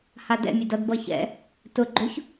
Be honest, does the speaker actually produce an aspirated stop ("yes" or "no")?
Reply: no